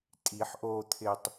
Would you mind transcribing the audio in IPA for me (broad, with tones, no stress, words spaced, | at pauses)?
tʼi˨˩˦ħ ʔoː˧t̪ʰɪ˧tˤ